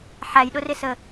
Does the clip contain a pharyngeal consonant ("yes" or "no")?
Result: yes